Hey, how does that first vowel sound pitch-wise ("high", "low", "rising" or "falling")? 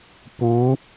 rising